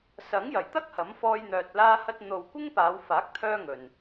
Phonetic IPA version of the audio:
s ɐ˨˥ ŋ j ɐ˨˩ j t̪ ɐ˥ k̚ h ɐ˨˥ m f ɔː˧ j n̪ œː˨ t̚ l aː˧ h ɐ˧ t̚ n̪ o˨ w kʷ ɪ˥ ŋ p aː˨˧ w f aː˨˥ k̚ t̪ʰ œː˧ ŋ ɵ˨ n

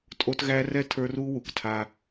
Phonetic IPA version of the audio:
tʼ o˦ t ɣ æ˦ r ɛ˦ tʰ ə˞˦ r u˦ w u˨ k tʰ a˦

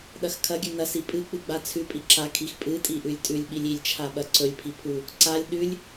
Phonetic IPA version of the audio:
ɗ ɐ x kʰ ɐ ɡʲ ʉ n ɐ s i pʼ ɨ k͡p ɨ ɡ͡b a t͡sʰ ʉ pʼ i ǁ a kʰ i x pʼ ɨ tʼ i ʔ ʉ lʲ tʼ ʉ lʲ ɓ i lʲ i lʲ t͡ʃʰ a ɓ ɐ ǀ ɵ lʲ pʰ i pʰ u | ǀ a lʲ ɗ ʉ lʲ

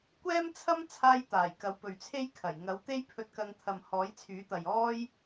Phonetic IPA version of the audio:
kʷ ɛː˥ m t͡sʰ ɐ˥ m t͡sʰ aː˧ j t̪ aː˨˩ j k ɐ˨˧ w p ɵ˨ ɥ t͡sʰ e˥ j kʰ ɐ˨˩ j ŋ ɐ˨˥ w t̪ e˥ j pʰ ɵ˧ t̚ k ɐ˧ ŋ t̪ʰ ɐ˨ m h ɔː˨˥ j t͡sʰ yː˨˥ t̪ ɐ˨ j ɔː˥ j

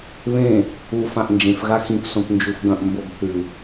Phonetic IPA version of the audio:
β ẽ | u f ã ʔ n d͡ʒ ẽ f ɣ a x ĩ p s õ p n d͡ʒ u f ɡ ɐ̃ ʔ m b o ɡ θ ʉ

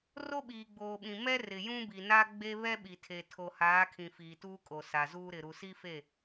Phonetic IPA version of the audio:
r o˦ ɓ iː˨ ɡ͡b oː˨ ɓ ĩ˨ m ɛ˦ r ɪ˨ j ũ˦ b i˨ n a˦ ɡ͡b e˦ β ɛ˦ ɓ i˨ tʰ e˨ tʰ o˨ h aː˨˦ kʰ ĩ˨ f iː˨ t uː˦ kʼ o˨ s a˨ z uː˦ ɾ ɪ˨ ɾ u˨ s i˦ f e˦˨

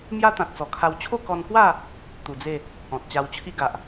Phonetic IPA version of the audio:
m j a˦ t̪ ã˨ t̚ t͡s ɔ˨˩ kʰ a˧ w t͡ɕʰ o˥˧ k ɔ˧ n k w a˥˧ | t̪ u˨˩ d͡z e˥˧ | ɔ̃˨ t̚ t͡ɕ a˧ w t͡ɕʰ i˦ ɡ a˨ ʔ

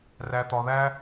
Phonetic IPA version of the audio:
r æ˨ t̪ ɒ˨ ð æ˧

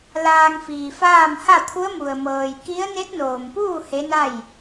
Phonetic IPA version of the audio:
l aː˧ ŋ f iː˩ f aː˥˨ m h a˥˨ t̪ʰ u˧˥ ə̯ m u˩ ə̯ m ɤː˩ j k i˧˥ ə̯ n e˧˥ t̚ n oː˩ m p uː˥˨ h e˧˥ n a˥˨ j

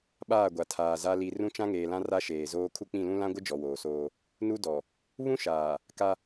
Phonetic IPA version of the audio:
ɓ aː˦˨ ɡʷ a˨ tʰ aː˨ z a˦ l i˨ r ũ˦ t͡ʃ ã˦ ŋ eː˨ l ã˦ r a˦ ʃ eː˨ z oː˦ kʰ u˦ k͡p ĩ˦˨ l ũ˦ l ã˦ ɡʷ ɪ˦ d͡ʒ ɔ˨ w oː˨ s oː˦ | n u˦ d ɔ˨ | β ũ˦ ʃ aː˨ | k a˦

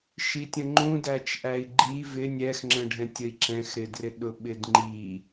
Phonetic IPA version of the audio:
ʃ i tʲ ə̃ ŋ͡ǃ ũ d æ t͡ʃ ʔ æ i̯ ɡ͡ǃ i v ɪ nʲ ɛ x ŋ͡ǁ ə̃ ɖʱ ɛ̃ tʲ ə i̯ ǁ ɛ̃ x ɾ ɪ d r ɪ ɗ ʊ ɓ ɪ d ŋ͡ǃ i

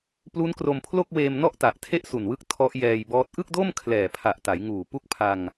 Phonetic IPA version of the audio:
p l u˦˥ n k r o˧ m pʰ l o˥˩ k̚ w eː˧ m n ɔ˥˩ ʔ t a˨˩ ʔ tʰ e˥˩ ʔ s u˨˩ n w ɯ˦˥ k̚ tʰ ɔ˦˥ ʔ j ɛː˧ j b ɔː˦˥ t̚ ʔ ɯ˥˩ k̚ d o˥˩ m kʰ l ɛː˨˩ pʰ a˨˩ ʔ t a˩˦ j ŋ uː˨˩ p u˥˩ k̚ pʰ a˧ ŋ

